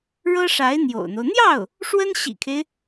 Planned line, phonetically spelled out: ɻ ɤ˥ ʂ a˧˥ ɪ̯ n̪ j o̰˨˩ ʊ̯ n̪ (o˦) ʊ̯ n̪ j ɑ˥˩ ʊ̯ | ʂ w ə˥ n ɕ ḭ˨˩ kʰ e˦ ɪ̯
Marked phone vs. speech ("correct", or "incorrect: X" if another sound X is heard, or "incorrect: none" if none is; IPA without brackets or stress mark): correct